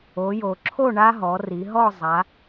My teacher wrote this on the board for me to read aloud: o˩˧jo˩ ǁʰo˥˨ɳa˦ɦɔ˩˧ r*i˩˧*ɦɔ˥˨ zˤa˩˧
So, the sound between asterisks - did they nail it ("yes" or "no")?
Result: yes